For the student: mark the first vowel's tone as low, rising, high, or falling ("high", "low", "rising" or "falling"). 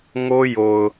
high